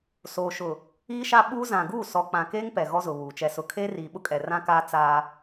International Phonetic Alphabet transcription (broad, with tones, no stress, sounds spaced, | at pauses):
s oː˨ ʃ ʊ˨ | iː˦ ʃ a˦ ɓ uː˦ z ã˨ ɡ uː˦˨ s ɔ˨ k͡p ã˨ k eː˦ ŋ p ɛ˨ ɣ ɔ˦ z ʊ˨ β uː˨ t͡ʃ ɛ˦ s ʊ˦ kʰ eː˦ r iː˨ ɓ ʊ˦ kʼ ɛ˨ r ã˦ k aː˦ t͡s aː˦